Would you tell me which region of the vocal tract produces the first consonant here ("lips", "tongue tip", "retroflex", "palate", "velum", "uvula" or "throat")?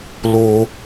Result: tongue tip